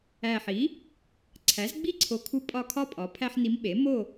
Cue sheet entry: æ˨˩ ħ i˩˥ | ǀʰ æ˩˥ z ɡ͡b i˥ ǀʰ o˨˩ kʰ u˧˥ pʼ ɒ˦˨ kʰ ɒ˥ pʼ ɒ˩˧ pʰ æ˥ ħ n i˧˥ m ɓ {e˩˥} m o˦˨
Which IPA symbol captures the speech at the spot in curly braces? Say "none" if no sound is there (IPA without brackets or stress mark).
e˩˥